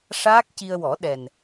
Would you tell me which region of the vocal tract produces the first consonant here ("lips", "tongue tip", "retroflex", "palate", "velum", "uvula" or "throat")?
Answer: retroflex